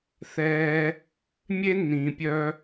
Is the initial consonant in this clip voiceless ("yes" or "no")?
yes